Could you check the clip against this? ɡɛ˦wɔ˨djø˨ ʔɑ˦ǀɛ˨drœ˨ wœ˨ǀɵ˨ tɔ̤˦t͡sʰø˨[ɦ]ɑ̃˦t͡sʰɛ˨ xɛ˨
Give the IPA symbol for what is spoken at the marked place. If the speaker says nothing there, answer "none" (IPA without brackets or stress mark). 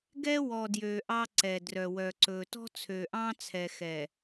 ʔ